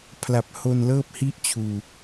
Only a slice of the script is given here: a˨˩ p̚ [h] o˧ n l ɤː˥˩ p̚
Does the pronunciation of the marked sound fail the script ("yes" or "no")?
no